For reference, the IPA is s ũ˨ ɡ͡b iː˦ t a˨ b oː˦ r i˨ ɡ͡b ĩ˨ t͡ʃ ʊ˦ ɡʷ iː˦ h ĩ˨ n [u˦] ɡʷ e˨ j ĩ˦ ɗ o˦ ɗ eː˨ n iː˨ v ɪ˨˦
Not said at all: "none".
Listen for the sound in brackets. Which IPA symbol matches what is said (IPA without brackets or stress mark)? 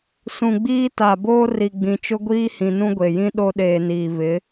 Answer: ũ˦